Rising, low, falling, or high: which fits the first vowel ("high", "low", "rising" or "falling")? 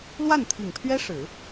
falling